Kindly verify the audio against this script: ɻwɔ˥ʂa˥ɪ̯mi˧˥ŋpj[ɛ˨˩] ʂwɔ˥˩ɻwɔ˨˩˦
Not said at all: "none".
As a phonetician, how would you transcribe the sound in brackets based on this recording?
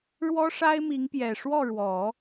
ɛ˨˩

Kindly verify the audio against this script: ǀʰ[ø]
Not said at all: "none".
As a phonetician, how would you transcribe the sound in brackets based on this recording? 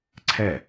ɛ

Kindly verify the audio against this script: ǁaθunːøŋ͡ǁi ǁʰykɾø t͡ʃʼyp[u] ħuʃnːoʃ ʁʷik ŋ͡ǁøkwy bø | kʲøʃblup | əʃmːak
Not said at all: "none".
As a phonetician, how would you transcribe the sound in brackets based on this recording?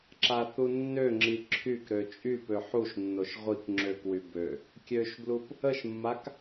ø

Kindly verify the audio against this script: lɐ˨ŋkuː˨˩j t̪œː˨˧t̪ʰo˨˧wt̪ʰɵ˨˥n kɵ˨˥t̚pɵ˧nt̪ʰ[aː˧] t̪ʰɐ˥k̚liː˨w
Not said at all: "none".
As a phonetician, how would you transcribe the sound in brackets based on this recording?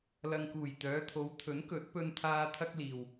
aː˧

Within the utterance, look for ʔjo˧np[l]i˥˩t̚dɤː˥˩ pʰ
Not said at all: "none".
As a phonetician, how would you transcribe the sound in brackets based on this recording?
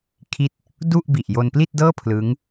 l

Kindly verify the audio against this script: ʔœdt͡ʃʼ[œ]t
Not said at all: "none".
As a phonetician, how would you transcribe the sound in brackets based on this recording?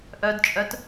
œ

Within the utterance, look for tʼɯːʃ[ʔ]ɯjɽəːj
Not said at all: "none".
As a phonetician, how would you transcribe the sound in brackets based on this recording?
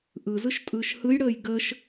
h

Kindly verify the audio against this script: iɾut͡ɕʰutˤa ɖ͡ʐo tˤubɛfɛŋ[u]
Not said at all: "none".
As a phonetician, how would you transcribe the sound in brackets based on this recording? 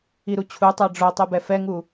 u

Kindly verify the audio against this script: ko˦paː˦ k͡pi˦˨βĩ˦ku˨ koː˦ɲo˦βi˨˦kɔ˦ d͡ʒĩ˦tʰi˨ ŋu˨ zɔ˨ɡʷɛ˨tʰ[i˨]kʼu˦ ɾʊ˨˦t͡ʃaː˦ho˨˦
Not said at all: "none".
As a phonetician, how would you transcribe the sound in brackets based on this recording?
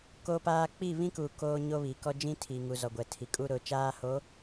i˨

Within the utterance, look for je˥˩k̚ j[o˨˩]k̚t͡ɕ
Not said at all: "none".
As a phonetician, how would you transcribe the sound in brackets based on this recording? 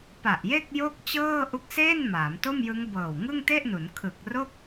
o˥˩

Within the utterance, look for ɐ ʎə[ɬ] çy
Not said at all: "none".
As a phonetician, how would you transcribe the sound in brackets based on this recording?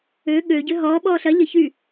none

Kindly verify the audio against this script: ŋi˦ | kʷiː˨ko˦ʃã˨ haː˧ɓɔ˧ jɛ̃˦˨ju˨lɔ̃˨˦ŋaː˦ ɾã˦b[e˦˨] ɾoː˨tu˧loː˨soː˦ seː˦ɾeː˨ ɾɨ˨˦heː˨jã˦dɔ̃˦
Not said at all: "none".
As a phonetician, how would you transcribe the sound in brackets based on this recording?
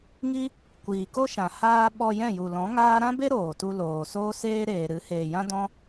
e˦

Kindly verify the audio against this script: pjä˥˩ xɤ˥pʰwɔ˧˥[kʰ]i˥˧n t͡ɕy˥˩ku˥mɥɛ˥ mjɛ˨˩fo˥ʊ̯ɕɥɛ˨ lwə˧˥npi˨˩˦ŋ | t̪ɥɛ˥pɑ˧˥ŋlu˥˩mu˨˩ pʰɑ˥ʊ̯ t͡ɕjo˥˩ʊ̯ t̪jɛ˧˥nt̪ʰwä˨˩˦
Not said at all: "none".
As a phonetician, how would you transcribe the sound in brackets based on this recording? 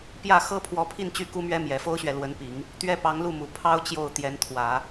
pʰ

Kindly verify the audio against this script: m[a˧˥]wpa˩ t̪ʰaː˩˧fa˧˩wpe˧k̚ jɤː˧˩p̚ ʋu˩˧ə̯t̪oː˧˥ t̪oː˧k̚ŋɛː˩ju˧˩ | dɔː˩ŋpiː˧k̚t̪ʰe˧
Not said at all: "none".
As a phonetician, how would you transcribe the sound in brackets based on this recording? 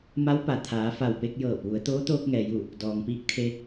a˧˥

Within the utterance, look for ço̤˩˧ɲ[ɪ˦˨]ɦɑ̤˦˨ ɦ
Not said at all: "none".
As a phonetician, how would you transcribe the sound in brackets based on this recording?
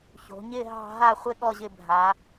ɪ˦˨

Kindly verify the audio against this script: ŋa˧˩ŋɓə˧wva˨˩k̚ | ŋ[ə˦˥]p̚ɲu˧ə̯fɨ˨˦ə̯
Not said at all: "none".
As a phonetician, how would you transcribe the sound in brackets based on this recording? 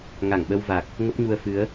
ə˦˥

